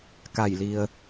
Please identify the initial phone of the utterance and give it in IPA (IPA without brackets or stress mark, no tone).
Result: k